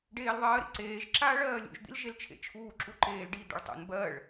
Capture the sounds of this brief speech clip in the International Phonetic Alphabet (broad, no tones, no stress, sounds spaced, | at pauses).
ɖ eː l ðˤ ɜː ɾ ḭ ǀ eː ʒ ǁ aː ɭ ɜː lʲ ṵ ʒ d̪ ḭ l ʒ e l t͡ʃʰ ḛ t͡ʃʰ uː ǁ u ǃ eː l ɖ i d̪ ɛ̰ ɭ tˤ ṵ n b ɜ ɭ